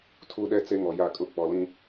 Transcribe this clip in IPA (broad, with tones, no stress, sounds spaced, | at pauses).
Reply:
tʰ u˦ ɗ ɛ˦ t͡s e˦ ŋ ɔ˨ j a˦˨ kʼ ʊ˦ k͡p ɔ˨ l ĩ˦